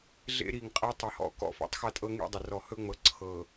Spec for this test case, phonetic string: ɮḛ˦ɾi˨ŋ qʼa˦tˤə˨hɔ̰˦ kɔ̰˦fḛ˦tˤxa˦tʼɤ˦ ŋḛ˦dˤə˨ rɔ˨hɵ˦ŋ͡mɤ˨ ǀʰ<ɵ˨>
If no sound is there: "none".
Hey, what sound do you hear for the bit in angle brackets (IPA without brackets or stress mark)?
ɤ˨